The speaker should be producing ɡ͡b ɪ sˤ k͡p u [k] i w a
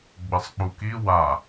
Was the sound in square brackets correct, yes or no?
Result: yes